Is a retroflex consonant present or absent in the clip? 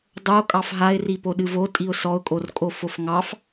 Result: absent